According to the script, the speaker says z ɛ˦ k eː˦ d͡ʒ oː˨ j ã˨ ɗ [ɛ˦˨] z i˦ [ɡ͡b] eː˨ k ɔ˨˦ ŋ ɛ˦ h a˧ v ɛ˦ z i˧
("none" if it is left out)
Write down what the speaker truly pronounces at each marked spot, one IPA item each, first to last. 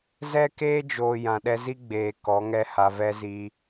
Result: ɛ˧, ɡ͡b

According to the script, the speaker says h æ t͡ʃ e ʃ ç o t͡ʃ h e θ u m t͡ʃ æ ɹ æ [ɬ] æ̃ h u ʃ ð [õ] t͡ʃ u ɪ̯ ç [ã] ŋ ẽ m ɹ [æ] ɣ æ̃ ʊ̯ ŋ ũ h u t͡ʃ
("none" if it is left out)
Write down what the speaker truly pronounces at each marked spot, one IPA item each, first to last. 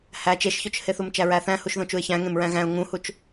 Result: θ, õ, æ̃, æ̃

